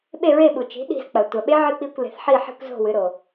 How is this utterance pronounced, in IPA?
ɓ e˦˨ ɹ e˦˨ ɓ u˩ t͡ʃ i̤˩˥ ɗ i̤˦˨ z k͡p ɐ˩ tʷ a˩ ɓ e˦˥ ʕ ɨ˦˨ k͡p i˦˨ kʷ l e̤˩˧ θ ħ i˦˨ ħ i̤˦˨ kʷ z o̤˦˨ w ɨ˩˧ ɾ o˩

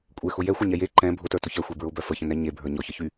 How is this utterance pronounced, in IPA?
kʷʼ ɛ x ʊ j ɛ xʷ ɛ ɲ ɛ j e ǃ ɛ̃ bʱ ʊ t ə˞ t ʊ ç ɛ xʷ e b ɹ ʊ b œ f ə ç ə̃ n ɛ ɲ e bʱ ə˞ ɲ ɔ ç ə ç y

